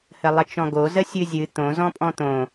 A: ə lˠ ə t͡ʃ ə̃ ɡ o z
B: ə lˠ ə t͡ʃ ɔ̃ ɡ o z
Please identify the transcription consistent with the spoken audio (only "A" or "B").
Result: B